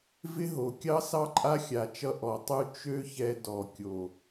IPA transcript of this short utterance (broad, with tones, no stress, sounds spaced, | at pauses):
v ɪ˦ ɦ o˨ kʲ ɑ˦ s ɑ˦ ǃʼ a˦ xʲ a˨ t͡ʃ ʌ˧ ʔ ɔ˨ tˤ u˦ t͡ʃ ø˦ ç ɛ˧ d ɔ˨ kʲ o˨